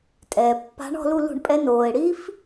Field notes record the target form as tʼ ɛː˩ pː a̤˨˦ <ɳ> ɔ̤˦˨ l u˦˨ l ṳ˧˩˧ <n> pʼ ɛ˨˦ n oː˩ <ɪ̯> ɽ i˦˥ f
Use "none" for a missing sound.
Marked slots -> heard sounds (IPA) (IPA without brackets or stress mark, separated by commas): ɳ, ɳ, ɪ̯